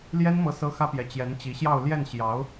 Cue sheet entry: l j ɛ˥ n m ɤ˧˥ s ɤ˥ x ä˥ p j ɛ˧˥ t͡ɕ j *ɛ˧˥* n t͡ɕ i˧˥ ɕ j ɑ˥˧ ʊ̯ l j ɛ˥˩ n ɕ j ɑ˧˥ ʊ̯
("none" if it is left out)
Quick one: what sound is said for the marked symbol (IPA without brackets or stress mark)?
ɛ˧˥